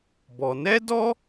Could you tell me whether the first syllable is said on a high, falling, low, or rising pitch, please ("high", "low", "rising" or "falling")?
low